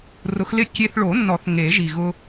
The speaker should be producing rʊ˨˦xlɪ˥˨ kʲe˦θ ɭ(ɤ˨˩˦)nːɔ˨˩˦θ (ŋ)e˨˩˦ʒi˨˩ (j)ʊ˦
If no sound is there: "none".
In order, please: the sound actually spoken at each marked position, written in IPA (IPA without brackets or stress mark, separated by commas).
o˨˩˦, ŋ, ɣ